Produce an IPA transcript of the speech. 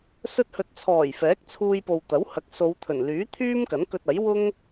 s ɵ˧ t̚ h ɵ˨ t̚ t͡sʰ ɔː˨˩ j f ɛː˨˥ k̚ t͡sʰ uː˧ j p o˨ w t̪ ɐ˨˥ w h ɐ˨˥ k̚ s o˨˧ w t̪ʰ ɵ˨˩ n l yː˨˥ t̪ʰ yː˥ m k ɐ˨˥ n k ɵ˧ t̚ ɐ˨˥ j w ʊ˥ ŋ

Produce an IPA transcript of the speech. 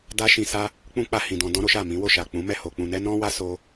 d a˦ ʃ ĩ˧ s a˦ | k͡p ũ˦ k͡p a˧ h ĩ˨ d ɔ̃˧ d ɔ̃˦ ɾ o˦ ʃ a˦˨ m ĩ˨˦ w o˦˨ ʃ a˨ k͡p ũ˨˦ m ɛ˦˨ h o˧ k͡p ũ˧ n ɛ˦ n ɔ̃˦ w a˦ s o˦

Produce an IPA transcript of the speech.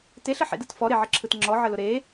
t e ɬ ə ħ ḛ d ɯ t f ɔ ɾ e ʕ ə ǁʰ ɯ t ŋ͡ǁ ɔ ʕ ə l ʊ ɾ e

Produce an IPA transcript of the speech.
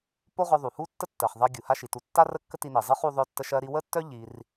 p o˥ ʁ œ˧ ðˤ u˩ h u˥ tː ə˥ tː ɜ˩ χ ðˤ ɜ˧ ɡʲ u˩ h a˥ ʃ i˩ t u˧ tː a˥ r ə˥ kː ə˥ t i˧ n i˩ zˤ ɨ˥ χ u˧ ðˤ œ˧ tː ə˧ ʃ ɜ˧ ɾ i˧ w ə˥ tː œ˥ ʎ i˧ r

